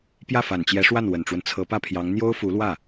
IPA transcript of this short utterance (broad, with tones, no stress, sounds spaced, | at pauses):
p j ä˥˩ f a˨˩ n t͡ɕ j ɛ˧˥ ʂ w a˥˩ n w ə˨˩ n ʈ͡ʂ w ə˦ n t͡sʰ ɤ˧˥ p ä˥˩ pʰ j ɑ˧˥ ŋ n̪ j o˥ ʊ̯ f u˧˥ l w ä˥˩